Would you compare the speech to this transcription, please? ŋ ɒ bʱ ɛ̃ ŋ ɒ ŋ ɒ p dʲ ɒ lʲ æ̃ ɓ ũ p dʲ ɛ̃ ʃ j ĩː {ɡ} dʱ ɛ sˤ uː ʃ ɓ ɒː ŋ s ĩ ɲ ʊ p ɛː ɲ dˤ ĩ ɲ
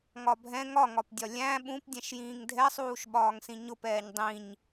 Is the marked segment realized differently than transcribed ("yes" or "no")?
yes